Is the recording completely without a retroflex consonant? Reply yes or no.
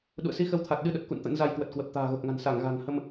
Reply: yes